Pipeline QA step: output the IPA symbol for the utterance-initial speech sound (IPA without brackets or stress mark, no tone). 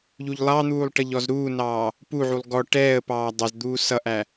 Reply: ʎ